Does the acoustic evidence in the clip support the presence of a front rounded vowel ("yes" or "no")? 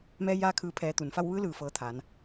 no